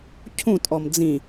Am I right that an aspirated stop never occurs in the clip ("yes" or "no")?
no